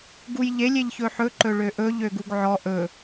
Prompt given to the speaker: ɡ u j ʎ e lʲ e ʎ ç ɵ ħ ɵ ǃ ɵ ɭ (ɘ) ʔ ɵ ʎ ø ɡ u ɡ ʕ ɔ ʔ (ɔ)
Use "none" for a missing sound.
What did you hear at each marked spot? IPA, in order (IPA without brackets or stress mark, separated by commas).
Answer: ø, ɵ